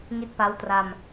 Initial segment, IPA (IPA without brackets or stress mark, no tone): ŋ